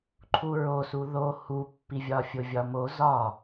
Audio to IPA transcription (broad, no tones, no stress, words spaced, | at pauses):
ǃʰuɹosu ðo hupːivʲɒ fʲovʲɒmo zɒ